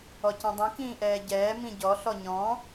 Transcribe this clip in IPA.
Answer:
ɔcĩdˤĩ kĩːʔɛːɟɛː mĩɟɔ ɬɔɲɔ̃

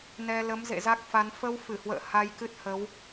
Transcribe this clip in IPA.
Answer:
nɛ˧ lə˨˦mzḛ˧˨ za˦˥k̚fa˨˦n fə˧w fɨ˧˩hwə̰ː˧˨ ha˧jkɨ˦˥t̚hə˨˦w

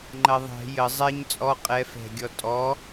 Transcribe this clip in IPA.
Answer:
ŋ͡ǃɐðˤɛ̤ jə zˤɛɲ t͡sʼɔ qʼɛ fɛ̤ɡʲɔ tʼɔ

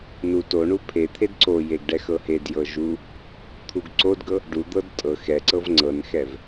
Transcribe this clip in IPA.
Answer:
nu toɳu pʰet̪ʰed ǀojeɡ ɖɛxɤhedjɤ ʒu | t̪ʰuɡǀodɡɤ | ɖud̪ɤd tʼɤ xɛǀɤv ŋ͡ǀɤnxɛv

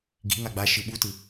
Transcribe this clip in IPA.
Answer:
ɡi̤ ŋaɡ͡ba ʃɯɓutɯ

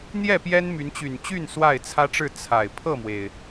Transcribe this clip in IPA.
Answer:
n̪jɛ˥˨pjɛ˦nmy˨˦nt͡ɕy˨˩n t͡ɕy˥˨n swa˥˨ɪ̯t͡sʰä˦ʈ͡ʂɻ̩˥˨ t͡sʰa˨˩ɪ̯ pʰɤ˥˨mwe˩ɪ̯

